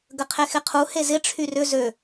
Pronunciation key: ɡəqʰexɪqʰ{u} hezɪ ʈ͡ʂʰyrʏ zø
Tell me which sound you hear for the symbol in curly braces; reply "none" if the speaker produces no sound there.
u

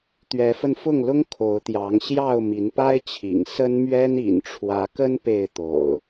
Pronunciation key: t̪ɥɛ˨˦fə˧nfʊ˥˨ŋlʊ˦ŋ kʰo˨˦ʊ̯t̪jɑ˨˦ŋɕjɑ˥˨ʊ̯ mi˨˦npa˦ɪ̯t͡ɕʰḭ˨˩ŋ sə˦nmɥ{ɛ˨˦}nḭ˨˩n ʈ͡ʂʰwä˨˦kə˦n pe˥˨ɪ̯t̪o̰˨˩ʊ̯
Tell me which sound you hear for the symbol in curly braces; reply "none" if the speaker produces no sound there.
ɛ˦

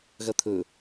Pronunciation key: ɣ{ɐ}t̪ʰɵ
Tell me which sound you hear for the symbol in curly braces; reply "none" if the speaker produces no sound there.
ɐ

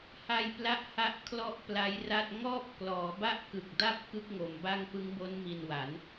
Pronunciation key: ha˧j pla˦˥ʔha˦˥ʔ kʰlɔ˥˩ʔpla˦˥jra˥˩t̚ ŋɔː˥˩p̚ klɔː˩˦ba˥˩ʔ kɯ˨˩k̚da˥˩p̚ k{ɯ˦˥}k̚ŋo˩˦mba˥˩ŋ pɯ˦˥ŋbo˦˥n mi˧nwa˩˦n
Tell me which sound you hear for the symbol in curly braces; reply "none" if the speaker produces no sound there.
ɯ˦˥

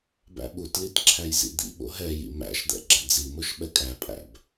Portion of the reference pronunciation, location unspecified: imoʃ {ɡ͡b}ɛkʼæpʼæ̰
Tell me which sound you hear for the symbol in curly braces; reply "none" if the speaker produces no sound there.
ɓ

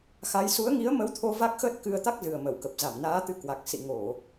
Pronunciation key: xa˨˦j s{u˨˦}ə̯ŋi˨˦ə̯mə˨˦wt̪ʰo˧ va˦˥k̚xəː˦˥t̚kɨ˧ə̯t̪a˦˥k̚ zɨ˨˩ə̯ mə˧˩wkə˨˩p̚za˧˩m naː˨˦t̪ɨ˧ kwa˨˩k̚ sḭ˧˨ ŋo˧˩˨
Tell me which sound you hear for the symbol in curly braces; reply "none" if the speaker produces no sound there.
u˨˦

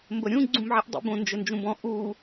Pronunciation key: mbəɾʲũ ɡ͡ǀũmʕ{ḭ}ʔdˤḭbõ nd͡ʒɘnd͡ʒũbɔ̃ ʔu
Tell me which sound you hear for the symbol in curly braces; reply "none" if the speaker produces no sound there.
i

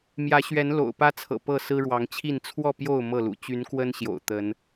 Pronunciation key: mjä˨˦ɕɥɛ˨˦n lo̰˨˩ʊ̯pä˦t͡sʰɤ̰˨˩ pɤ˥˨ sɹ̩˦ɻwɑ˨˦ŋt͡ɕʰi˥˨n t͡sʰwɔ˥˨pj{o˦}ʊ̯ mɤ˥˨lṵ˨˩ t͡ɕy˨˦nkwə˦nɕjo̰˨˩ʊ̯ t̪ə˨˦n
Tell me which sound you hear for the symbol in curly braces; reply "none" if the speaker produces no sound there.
o˥˨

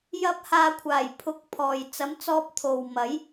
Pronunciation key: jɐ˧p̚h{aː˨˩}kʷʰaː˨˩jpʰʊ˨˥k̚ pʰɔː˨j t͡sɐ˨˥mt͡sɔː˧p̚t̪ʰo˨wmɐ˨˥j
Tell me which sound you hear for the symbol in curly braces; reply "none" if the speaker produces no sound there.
aː˨˧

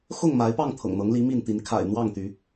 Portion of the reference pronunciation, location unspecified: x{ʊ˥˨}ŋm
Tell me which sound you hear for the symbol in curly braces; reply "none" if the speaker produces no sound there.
ʊ˥˨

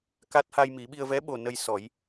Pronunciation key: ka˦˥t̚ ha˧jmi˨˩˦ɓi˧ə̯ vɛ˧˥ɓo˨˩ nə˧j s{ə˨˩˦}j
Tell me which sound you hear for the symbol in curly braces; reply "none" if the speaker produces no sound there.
ɔ˨˩˦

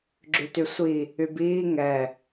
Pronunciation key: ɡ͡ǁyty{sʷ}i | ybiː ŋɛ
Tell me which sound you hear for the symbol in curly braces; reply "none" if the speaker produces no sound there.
sʷ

